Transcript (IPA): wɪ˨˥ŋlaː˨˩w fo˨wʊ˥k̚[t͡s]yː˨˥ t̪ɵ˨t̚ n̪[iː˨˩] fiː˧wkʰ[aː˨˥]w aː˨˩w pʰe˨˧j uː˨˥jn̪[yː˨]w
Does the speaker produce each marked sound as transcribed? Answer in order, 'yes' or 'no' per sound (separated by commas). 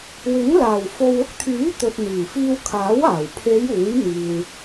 no, yes, yes, no